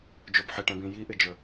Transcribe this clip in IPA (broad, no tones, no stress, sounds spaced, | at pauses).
d͡ʒ o b ħ ɪ ʈ ɛ̃ b ĩ j i ʔ ɪ d͡ʒ ə˞